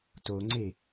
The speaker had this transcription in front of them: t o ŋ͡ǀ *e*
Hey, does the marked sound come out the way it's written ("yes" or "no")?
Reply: yes